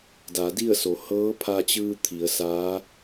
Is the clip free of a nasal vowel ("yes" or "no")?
yes